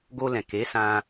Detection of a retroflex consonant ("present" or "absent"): absent